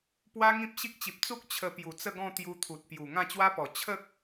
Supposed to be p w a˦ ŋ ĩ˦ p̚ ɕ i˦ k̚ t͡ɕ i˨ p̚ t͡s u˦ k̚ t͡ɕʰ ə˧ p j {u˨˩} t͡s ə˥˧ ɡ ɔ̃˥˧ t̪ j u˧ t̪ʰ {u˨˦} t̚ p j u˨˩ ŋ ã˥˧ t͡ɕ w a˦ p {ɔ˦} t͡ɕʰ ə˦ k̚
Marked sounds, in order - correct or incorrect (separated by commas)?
correct, incorrect, incorrect